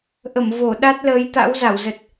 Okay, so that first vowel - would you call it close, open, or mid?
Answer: mid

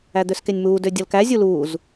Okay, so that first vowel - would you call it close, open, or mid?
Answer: open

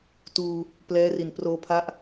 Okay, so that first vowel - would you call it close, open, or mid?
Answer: close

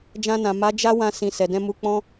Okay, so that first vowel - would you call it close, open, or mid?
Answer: open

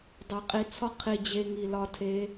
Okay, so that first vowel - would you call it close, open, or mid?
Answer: open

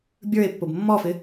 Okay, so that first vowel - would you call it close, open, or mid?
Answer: mid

